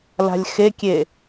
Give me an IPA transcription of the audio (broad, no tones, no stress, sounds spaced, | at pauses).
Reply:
l a̤ lʲ x e kʲ e